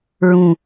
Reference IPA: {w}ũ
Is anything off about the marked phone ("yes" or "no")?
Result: yes